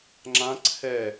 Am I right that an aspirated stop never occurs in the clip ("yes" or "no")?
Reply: no